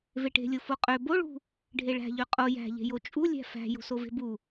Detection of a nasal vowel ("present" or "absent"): absent